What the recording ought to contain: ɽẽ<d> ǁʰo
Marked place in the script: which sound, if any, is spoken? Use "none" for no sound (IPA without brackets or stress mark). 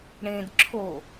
d